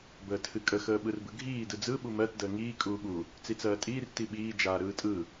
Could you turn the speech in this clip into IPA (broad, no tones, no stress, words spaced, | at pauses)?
bəːtʰɨkʼə xəːɓɯrbɯɡʱiː dɯd͡zɯ ɓumɜt dəːŋiː kʼuːɓu | t͡sit͡sɜːtʼiːr tiɓiː d͡ʒaːɾɯːtʼɯ